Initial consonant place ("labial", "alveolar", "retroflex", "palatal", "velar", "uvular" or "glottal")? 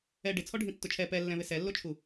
retroflex